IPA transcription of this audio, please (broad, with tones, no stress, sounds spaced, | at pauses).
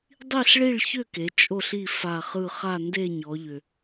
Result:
dˤ i˦˨ ɬ ɭ i˦˨ ɭ ç ʏ˦˨ k e˩˧ t͡ʃʼ o˦˨ ɬ i˦˨ f a˦˨ χ ɯ˦˨ χ a˦˨ n d e˦˨ ɲ ɔ˩˧ ʎ ʏ˩